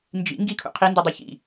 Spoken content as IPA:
n d͡ʒ ḭ ŋ ɡ i kʰ ṵ qʰ i n d u dˤ ɨ ç ḭ

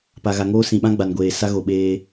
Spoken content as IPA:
p a˨ ɣ a˨ ŋ oː˦ s ĩ˨ ɓ ã˦ ɡ͡b a˨ n ɡʷ eː˨ s a˦ ɣ o˨ ɓ eː˦

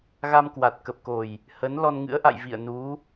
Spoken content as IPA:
ɣ a˧ m k w a˨˩ t̚ k ə˨˩ p̚ k o˨˩ j | h ə˨˦ n l ɔ˧ n ŋ ɨ̰˧˥ ə̯ ʔ a̰˧˨ j v ḭ˧˨ ə̯ n u˨˦

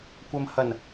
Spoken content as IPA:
kʷ ɐ˨ m h ɐ˨˩ n

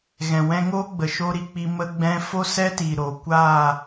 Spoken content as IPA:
ɣ ɛ̃˨ w ɛ̃˧ ŋ oː˦ ɡ͡b ə˨ ʃ o˦ ɾ i˧ k͡p i˧ m ə˦ ɡ͡b ɛ̃˦ f o˦ s ɛ˦ t iː˨ ɾ o˨ kʷ aː˦˨

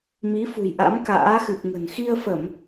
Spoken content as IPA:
m i˨˦ f ṳ˨˩ j ʔ a̰˧˥ m k a̰ː˧˥ x ɨ˨˩ p̚ ŋ ə̤˨˩ n x i˧ ə̯ f ə˧˩˨ m

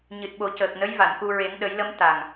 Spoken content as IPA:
ɲ ɨ˨˩ t̚ ɓ o˨˩˦ c əː˨˩ k̚ n ə˧˥ j v a˨˩˨ n k u˧ ɹ e˨˩˦ ŋ ɗ ə˨˩˦ j l ə˧˥ m t̪ a˨˩ ŋ

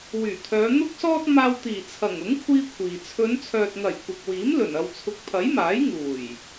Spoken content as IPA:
w yː˨˩ t̪ʰ œː˨˧ n̪ ʊ˥ k̚ s ɔː˥ t̚ m aː˧ w t̪ iː˨˩ t͡sʰ ɐ˨˩ ŋ ʊ˨˥ ŋ kʷʰ iː˥ kʷʰ iː˨ t͡sʰ ɵ˨˧ n t͡sʰ œː˨ t̚ ŋ ɐ˨˩ j kʷ ɐ˨ k̚ w iː˨˥ m l ɵ˨˩ n ɐ˨ w t͡sʰ ʊ˨ k̚ pʰ ɐ˨˥ j m aː˨˥ j ŋ uː˨˩ j

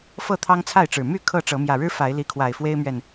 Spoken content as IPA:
f ɤ˥˨ t̪ʰ ɑ˦ ŋ t͡sʰ a˥˨ ɪ̯ ʈ͡ʂ ɻ̩˨˩ m y˥˨ kʰ ɤ˥˨ ʈ͡ʂ ɤ˨˦ m j ä˨˩ ɻ ɻ̩˦ f a˨˦ ɪ̯ l i˨˦ kʰ w a˨˩ ɪ̯ f w e˦ ɪ̯ m ɥ ɛ˨ n

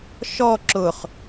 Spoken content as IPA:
ʃ ɔ ǁ ʊ χ

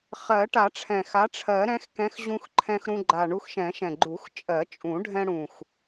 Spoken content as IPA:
χ ɜ˨˩˦ ʈ a˨˩˦ ʈ͡ʂʰ ɛ̃˨˩ x a˨˥ ʈ͡ʂʰ ɜ˨˩˦ ɾ ɛ̃˨˥ x k ɛ̃˨˥ x ʑ ũ˧ x ǃʰ ɛ̃˧ x ɾ ũ˧ ɡ͡ǃ a˨˩ ɳ u˧ x ʃ ɛ̃˨˩˦ ʃ ɛ̃˨˩ ɡ͡ǃ u˨˩˦ x t͡ʃʼ ɜ˨˩˦ t͡ʃʼ ũ˨˩˦ ɖʱ ɛ̃˧ ɽ ũ˨˩ x

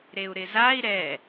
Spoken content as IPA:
ɾ e u̯ ɾ ɪ z a i̯ ɾ ɛ

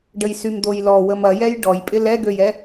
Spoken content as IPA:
ɖ ə j s y m d̪ o j l ɔ w ə m ɐ j ɛ j ɖ ɔ j pʼ ɪ l ɛ ɡ ø j ɛ

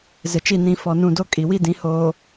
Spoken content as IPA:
z ɪ˨ t͡ʃ i˦˨ n ĩ˨ f ɔ˨ n ũ˨ d o˦ kʼ i˨ w i˦ d ĩ˨˦ h oː˨

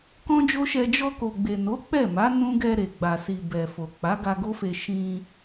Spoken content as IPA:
k ɔ̃˦ d͡ʒ o˦ ʃ ɛ˧ d͡ʒ ɔ˧ k o˨ ɡ͡b e˨ n o˨˦ k͡p ɛ˦˨ m a˨˦ n ũ˦ ɡ ɛ˧ ɾ e˨ ɡ͡b a˨ s i˨ b ɛ˨ f o˨ k͡p a˨˦ ɡ a˧ ɡ o˦ f e˧ ʃ ĩ˧

